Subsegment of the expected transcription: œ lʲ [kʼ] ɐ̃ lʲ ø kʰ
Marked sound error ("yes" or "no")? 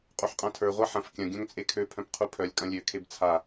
no